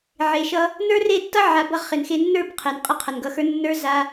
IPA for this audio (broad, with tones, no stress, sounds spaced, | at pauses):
ʕ e˨ ʃ ʌ˧ | n ə˞˦ r e˦˨ tː ʌ˦ ʕ a˨˦ b ʌ˧ ʁ χ ɪ˨ n x e˧ nː ə˞˦˨ b qʰ e˨ n qʼ ɐ˦ qʰ ʌ˨ n ɡ ʌ˧ x ə˞˦ nː ə˞˦ z a˧